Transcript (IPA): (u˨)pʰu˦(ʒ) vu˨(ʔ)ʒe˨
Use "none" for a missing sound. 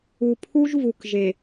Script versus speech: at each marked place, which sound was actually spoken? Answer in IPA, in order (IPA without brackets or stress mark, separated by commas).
u˨, ʒ, k